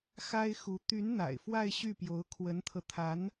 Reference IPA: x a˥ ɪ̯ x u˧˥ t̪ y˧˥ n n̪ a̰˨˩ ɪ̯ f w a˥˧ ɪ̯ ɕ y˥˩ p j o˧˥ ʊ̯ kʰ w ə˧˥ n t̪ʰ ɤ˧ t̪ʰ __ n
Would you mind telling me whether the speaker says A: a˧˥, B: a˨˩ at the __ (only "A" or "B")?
A